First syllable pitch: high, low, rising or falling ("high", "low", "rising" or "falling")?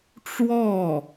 falling